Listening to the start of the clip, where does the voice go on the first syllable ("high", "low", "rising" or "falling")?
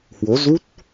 rising